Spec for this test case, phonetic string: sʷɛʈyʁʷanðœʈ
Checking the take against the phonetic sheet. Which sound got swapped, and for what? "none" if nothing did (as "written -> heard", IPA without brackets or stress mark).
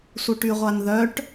ɛ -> œ